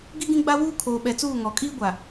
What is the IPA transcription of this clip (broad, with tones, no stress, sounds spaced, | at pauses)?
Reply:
ɡ i˦ ɡ ĩ˦ ɡ͡b a˦ w uː˦ kʰ oː˨ ɓ ɛ˨ t͡s uː˦˨ ŋ ɔ˨ kʼ iː˦ ɡʷ a˨